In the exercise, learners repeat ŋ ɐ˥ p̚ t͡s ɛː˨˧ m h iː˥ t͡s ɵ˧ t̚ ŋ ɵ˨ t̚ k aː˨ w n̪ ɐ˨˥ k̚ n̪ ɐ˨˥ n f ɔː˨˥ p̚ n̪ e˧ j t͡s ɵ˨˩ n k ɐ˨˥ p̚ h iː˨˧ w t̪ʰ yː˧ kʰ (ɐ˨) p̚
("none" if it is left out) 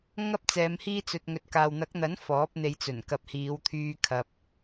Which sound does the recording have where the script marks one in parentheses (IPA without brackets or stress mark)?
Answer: ɐ˨